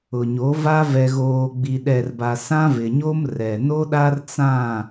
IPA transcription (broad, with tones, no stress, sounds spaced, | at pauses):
ʊ˨ ɲ o˨˦ v a˦ v ɛ˨ ɣ oː˨ ɡ͡b i˨ ɗ ɛ˨ r b a˨ s ã˦ v ɪ˨ ɲ o˦ m r ɛ˨ n o˦ ɗ a˦ r t͡s ã˦˨